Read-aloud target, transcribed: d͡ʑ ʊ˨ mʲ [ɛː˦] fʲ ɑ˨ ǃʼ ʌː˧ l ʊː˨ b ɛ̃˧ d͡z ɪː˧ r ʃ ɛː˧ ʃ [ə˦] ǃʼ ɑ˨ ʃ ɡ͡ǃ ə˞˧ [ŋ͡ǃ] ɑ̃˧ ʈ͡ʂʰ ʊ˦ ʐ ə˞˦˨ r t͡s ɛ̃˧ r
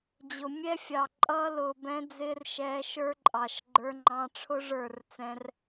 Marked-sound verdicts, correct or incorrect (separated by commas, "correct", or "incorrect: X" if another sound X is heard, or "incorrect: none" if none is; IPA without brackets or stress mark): incorrect: ɛ˦, incorrect: ə˞˦, correct